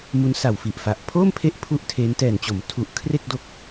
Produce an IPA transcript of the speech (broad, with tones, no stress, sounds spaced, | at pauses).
m u˦˥ n s a˨˩ w f i˨˩ ʔ f a˨˩ ʔ pʰ oː˥˩ m pʰ e˦˥ ʔ pʰ u˥˩ ʔ tʰ e˦˥ n t ɛː˨˩ n t͡ɕ o˩˦ m tʰ u˨˩ ʔ kʰ r e˥˩ k̚ d o˦˥ k̚